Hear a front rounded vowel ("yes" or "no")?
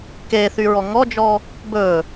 yes